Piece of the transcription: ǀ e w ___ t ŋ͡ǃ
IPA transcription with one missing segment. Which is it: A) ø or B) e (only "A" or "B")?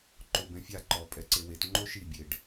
B